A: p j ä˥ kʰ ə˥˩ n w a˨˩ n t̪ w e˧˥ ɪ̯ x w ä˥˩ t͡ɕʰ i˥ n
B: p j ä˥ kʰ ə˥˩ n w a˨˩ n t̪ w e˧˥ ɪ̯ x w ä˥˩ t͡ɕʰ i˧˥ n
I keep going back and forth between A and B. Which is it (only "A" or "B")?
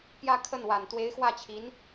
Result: B